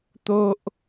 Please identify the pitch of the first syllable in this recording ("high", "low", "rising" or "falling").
high